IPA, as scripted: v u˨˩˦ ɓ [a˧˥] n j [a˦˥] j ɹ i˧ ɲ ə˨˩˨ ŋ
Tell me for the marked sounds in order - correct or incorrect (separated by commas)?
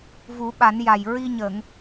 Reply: incorrect, incorrect